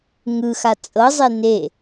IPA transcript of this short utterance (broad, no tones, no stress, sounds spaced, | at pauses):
ŋ ɯ x a t͡sʼ ɤ zˤ e n e